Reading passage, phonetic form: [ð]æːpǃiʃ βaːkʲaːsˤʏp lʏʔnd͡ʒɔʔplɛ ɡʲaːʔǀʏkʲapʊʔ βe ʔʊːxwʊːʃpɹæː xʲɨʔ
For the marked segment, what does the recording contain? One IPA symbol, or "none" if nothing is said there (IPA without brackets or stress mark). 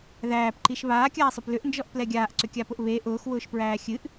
ð